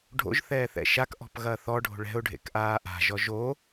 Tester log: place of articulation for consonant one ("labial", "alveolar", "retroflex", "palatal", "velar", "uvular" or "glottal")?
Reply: retroflex